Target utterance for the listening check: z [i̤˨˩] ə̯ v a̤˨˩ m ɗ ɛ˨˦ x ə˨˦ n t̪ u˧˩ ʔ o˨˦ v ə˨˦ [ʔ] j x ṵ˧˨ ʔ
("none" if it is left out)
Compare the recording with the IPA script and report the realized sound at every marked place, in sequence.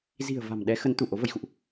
i̤˨˩, none

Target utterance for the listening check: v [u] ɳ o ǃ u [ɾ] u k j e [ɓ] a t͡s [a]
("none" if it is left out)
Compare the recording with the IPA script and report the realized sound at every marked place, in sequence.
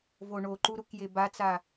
o, ɾ, b, a

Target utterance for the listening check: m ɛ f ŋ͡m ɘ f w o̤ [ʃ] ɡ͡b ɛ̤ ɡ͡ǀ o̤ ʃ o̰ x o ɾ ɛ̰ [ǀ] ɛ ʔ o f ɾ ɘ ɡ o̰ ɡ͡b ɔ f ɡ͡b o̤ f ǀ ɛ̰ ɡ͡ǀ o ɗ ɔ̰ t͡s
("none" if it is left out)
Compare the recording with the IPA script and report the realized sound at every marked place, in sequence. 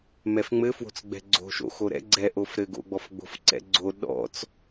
t͡s, ɡ͡ǀ

